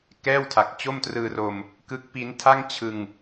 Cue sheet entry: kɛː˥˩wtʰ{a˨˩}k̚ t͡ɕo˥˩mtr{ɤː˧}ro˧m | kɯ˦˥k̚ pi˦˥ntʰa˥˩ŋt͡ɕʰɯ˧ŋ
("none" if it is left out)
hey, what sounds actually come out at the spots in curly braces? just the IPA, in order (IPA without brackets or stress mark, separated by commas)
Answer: a˨˩, ɯː˧